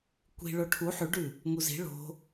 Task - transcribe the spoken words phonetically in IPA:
kʷ i̤ ɭ o ʈʰ u ħ ʉ ɖ ʉ | ŋ u z i̤ ɭ o̤

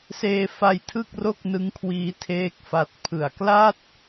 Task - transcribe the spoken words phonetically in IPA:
s eː˧ f a˧ j tʰ ɯ˥˩ k̚ r o˥˩ k̚ n ɯ˦˥ ŋ kʰ w iː˧ tʰ eː˥˩ k̚ f a˦˥ t̚ pʰ ɯ˨˩ a̯ k l a˥˩ t̚

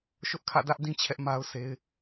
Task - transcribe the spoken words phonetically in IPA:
ʃ ʊ˦ ʔ kʰ ä̰˦˨ d ä˦ ʔ d ĩ˦ t͡ɕʰ ɛ˦ ʔ m a˦ ʊ̯ sʰ e˦ ɪ̯

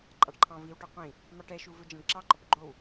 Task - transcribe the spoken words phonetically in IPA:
ǃʼ ɑ ɖ ǃʰ ɑ̃ v i w ʈ ɔ qʷ ĩ | m ɑ ʈ ɛ ʃ u v ɵ d͡ʒ ɑ̃ ɖ ǁ ɑ ǃ ɔ p ɡ͡ǃ o w

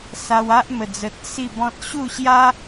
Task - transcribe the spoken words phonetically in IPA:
s a˧ w a˦ ʔ m ə˨˩ d͡z ə˨ t̚ s i˥˧ b ɔ̃˦ t̚ ɕ u˥˧ ɕ j a˦

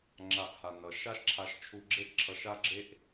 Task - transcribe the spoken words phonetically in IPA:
ŋ͡ǁ a˧ ʔ h a˩ n ʌ˩ ʃ a˥ ʃ ǁʰ a˧ ʃ t͡ʃʰ u˧ ɡ͡ǁ e˥ ʔ ǁʰ ʌ˧ ʃ a˥ ɡ͡ǁ e˥ ʔ

